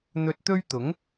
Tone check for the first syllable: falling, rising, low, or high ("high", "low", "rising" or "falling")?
low